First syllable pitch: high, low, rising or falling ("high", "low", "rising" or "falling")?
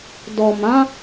low